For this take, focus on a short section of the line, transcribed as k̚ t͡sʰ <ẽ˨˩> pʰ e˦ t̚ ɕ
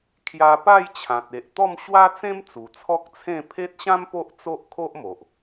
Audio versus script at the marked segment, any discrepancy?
yes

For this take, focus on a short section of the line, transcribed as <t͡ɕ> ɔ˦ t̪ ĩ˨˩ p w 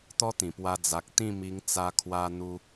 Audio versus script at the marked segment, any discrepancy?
yes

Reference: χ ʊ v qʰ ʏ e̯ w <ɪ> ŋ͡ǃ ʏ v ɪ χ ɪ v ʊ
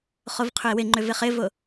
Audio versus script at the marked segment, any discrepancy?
no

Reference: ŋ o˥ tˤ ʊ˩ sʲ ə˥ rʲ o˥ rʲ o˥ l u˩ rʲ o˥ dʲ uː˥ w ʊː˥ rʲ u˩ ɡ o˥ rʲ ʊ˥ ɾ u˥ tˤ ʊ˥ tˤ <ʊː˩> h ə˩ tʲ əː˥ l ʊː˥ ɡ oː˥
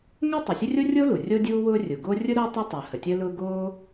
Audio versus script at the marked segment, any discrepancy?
no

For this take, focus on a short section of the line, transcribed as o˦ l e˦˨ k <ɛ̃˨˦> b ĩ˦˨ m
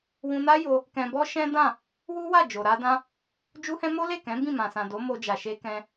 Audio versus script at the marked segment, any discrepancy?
no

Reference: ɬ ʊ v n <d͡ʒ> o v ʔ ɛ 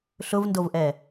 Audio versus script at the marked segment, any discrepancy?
yes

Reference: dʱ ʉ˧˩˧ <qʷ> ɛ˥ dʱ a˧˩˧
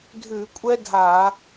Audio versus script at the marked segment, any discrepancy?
yes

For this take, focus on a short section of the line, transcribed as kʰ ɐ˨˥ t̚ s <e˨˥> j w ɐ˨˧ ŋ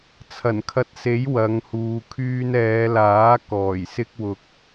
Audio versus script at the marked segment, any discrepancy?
no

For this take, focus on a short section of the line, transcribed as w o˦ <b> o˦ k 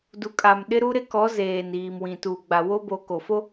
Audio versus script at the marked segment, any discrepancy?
no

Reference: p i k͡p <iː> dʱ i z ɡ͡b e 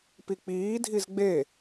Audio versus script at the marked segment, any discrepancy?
no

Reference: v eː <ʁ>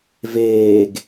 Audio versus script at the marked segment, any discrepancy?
yes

